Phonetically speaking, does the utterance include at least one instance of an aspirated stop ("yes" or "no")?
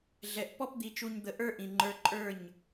no